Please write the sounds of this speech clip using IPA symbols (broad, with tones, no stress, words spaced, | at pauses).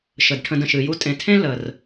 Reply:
ʃə˩dʈʰə̃˨d ə̃˨ʃɨ˨ju˥ tʼẽ˨tʰẽ˥ lə˩r